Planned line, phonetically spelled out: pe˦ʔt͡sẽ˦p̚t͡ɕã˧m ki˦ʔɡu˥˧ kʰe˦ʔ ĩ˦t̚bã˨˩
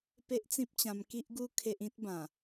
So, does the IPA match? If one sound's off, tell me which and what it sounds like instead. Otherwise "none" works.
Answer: ẽ˦ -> ĩ˦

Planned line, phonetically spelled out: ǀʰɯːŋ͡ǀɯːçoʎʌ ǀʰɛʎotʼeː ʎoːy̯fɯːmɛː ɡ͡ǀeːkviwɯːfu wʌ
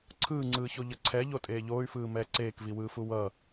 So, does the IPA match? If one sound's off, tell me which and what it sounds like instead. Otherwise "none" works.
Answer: ɡ͡ǀ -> ǀ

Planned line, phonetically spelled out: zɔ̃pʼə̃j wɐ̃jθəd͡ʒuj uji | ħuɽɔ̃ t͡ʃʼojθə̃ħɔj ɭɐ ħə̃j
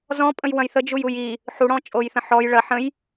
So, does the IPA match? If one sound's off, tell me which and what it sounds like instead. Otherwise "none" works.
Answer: none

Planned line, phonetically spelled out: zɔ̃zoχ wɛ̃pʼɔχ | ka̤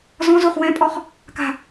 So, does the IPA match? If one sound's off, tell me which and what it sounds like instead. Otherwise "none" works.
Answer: none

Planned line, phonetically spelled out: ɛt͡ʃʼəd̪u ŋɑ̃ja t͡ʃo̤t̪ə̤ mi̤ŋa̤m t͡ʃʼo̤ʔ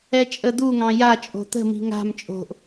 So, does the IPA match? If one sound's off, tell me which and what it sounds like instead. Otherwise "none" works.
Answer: t͡ʃ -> t͡ʃʼ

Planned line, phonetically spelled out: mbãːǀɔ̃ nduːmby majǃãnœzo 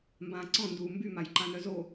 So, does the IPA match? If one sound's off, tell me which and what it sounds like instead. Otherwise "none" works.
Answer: none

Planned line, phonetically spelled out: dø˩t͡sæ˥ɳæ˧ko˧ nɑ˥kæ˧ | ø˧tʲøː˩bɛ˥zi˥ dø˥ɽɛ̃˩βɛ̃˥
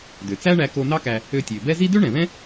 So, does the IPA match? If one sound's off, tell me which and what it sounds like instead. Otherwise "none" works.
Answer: ɽ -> ɳ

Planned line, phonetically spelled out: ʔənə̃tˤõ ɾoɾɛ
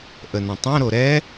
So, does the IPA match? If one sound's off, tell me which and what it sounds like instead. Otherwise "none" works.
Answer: none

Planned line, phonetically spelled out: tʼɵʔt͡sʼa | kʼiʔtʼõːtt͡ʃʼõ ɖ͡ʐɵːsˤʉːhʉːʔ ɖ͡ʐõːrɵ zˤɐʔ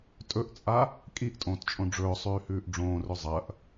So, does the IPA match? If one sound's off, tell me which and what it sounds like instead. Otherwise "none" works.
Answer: none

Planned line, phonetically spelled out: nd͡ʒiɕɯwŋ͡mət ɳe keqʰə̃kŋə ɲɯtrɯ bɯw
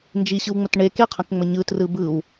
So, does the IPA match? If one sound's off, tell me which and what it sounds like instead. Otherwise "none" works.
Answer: ŋ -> ŋ͡m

